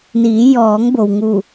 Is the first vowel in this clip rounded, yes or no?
no